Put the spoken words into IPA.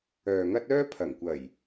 œː˨ŋɐ˥t̚ œː˥ pʰɐ˨˩ŋkʷɐ˨˩j

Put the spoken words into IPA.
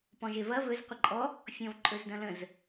pɔ̃ʒevɐ vɵz qʷəǃʼɔ | fʲɔ̃vǃʼɵzdɐ̃lə̃z

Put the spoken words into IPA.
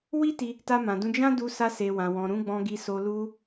wi˦ti˧ | ta˧mã˨dũ˧ d͡ʒã˦ du˧sa˧se˨ wã˨wɔ̃˨ ɾũ˨˦ɡ͡bɔ̃˧ɡi˧so˧ lu˧

